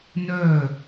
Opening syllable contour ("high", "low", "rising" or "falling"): falling